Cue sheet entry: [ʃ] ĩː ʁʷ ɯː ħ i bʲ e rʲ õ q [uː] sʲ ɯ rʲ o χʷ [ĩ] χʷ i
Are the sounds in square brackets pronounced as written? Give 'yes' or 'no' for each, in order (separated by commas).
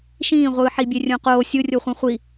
yes, no, yes